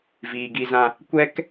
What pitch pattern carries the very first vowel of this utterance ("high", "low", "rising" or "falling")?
low